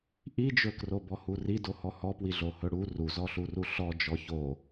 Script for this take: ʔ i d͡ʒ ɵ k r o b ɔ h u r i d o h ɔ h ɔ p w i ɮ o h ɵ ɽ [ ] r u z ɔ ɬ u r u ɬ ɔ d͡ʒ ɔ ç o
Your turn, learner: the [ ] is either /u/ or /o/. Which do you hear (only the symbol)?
u